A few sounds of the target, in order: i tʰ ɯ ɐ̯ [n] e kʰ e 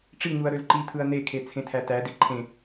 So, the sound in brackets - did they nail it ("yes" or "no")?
yes